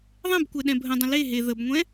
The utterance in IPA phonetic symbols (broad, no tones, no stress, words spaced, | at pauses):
ðˤɛ̃bkʷɛ ɗɛ̃bʱə̃dˤə̃ le ɦe ðəbŋʷɛ̃